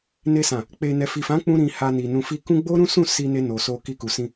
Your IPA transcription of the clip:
n e˧ s ã˨ | k͡p e˨ n ɛ˨ f i˨ f ã˨˦ k͡p ũ˧ ɾ ĩ˧ h a˧ n i˨ n ũ˨ f i˧ k ũ˦ ɡ͡b o˦ ɾ ũ˦ s ũ˦˨ s i˧ n e˧ n o˨ s o˧ k i˧ k u˨ s ĩ˧

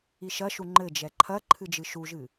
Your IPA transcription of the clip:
i ʃ ɐ ʃ u ŋ͡ǃ ɘ d͡ʒ ɛ ǃʰ ɐ ǃʰ ɨ d͡ʒ ɨ ʃ u ʒ ɨ

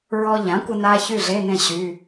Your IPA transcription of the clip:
ɹ ɔ˧ ʎ ã˩˥ kʷ ə˧ n a˧ ç y˥˩ ɮ e˧˥˧ n ẽ˥˩ ɕ y˧˥˧

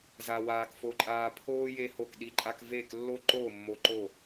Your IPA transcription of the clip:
z a˧ w aː˧ k f o˧ ǃʼ aː˧ pʰ oː˥ j e˥ h o˥˩ k ɗ i˥ ǃʼ a˥ k v eː˥˩ k lː o˥ ǃ oː˥˩ mː o˧ ǃ o˥˩

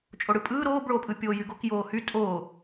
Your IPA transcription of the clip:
t͡ʃʼ o ɽ ɯ pʼ ɯː ɾ oː b ɭ oː pʼ ɯ pʲ oː j y ɡ o k j oː h y tʼ oː

